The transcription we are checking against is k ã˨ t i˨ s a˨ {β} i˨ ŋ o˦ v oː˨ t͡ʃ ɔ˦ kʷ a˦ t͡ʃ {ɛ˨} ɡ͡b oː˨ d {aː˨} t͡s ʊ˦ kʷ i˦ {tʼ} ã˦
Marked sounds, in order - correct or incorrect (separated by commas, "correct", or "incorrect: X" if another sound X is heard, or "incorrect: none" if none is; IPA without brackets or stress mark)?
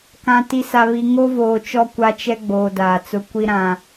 correct, incorrect: ɛ˦, correct, incorrect: ɾ